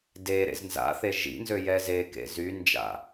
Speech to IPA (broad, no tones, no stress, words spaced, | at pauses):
de ɾḛznza̰θe ʒḭnzø jɛzekḛ zynd͡ʒa̰